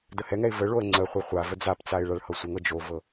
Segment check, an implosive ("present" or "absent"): absent